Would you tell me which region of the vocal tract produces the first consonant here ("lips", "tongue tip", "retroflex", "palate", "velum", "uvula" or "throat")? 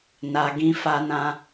tongue tip